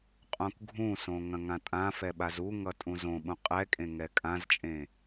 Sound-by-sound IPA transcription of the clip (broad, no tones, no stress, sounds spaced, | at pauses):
qʼ ũ k ɡʱ ũ s õ ŋ ɐ̃ ŋ ã tʼ ã f ɛ ɓ a z u ŋ ʌ tʼ ũ z õ ɓ ũ qʼ ɛ kʼ ẽ ŋ ɛ kʼ ã z t͡ʃʼ ẽ